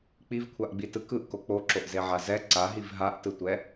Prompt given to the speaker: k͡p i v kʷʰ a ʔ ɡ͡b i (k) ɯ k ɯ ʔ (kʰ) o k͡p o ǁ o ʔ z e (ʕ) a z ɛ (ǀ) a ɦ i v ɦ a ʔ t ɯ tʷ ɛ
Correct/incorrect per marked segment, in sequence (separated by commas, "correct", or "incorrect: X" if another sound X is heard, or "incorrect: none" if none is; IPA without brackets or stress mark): incorrect: t, incorrect: k, correct, correct